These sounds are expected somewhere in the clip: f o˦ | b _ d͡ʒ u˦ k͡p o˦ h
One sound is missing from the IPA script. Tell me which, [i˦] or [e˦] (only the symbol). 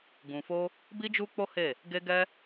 i˦